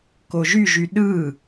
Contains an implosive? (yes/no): yes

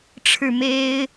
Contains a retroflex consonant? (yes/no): yes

